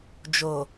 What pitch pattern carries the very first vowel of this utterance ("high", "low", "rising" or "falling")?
low